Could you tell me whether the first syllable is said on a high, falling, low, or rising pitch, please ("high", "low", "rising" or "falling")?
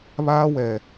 high